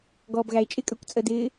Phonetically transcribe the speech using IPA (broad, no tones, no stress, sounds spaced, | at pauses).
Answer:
ɡ ɔː b ɣ æ e̯ t͡ʃʼ ɪ kʼ ə˞ kʷ t͡sʼ ə d ɪː